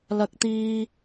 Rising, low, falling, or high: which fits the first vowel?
high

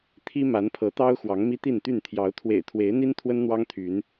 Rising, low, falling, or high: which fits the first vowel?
high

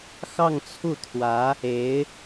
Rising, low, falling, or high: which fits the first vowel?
falling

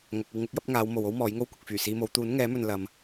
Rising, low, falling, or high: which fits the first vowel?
low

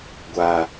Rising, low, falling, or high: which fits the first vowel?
low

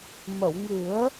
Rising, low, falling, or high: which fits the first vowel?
low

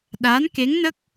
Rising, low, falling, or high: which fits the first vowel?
rising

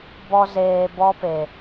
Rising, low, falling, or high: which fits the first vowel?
high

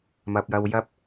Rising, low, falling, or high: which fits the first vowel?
low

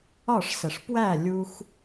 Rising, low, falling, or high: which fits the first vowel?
falling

